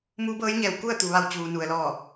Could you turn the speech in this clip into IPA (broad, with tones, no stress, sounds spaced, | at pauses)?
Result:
m uː˧˥ b ɤː˧˥ j ɲ ɛː˧˩ w k u˥˨ ə̯ t̪ u˩ ʋ a˧˩ w t͡ɕ uː˩ n u˩ ə̯ l ɔː˧˩